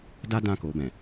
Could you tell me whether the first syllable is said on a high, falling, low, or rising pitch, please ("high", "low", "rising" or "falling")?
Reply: high